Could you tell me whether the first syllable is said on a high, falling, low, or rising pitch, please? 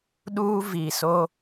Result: high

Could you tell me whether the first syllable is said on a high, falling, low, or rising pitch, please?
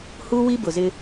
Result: high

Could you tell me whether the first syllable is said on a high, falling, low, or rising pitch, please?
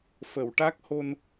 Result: low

